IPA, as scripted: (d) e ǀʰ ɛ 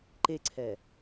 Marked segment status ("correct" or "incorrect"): incorrect